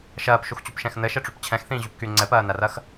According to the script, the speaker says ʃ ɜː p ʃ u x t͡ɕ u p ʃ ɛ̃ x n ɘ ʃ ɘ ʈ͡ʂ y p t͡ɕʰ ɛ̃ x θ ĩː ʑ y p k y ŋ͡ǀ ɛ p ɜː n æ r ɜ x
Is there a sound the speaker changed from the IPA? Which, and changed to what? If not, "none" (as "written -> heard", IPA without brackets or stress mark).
none